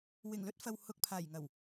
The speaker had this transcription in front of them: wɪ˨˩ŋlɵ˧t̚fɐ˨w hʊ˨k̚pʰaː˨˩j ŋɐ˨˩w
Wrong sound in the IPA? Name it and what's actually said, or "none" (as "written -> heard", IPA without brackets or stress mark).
none